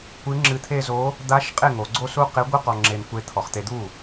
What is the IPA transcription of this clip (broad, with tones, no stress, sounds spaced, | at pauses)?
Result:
kʷ ɨ˧˥ ŋ͡ǁ ɨ˧ t̪ʰ e˥˧ z o˧˥ | d̪ a˧˥ ʃ qʼ e˥˩ ŋ o˩˧ ɡ͡ǀ o˥˧ s u˥˧ q e˧˥ ɡʷ ɨ˥˧ q ɔ˧ ŋ͡ǁ e˧ n kʷ e˧˥ t̪ʰ ɔ˩˧ χ t̪ e˧ d̪ u˥˩